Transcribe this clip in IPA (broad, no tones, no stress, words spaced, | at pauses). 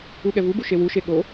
uɠɛvubu ʃewuʃe ɠo